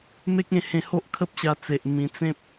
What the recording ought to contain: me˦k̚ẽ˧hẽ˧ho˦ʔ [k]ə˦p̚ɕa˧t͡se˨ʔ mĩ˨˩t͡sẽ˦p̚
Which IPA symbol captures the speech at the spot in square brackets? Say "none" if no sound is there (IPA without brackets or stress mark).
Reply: kʰ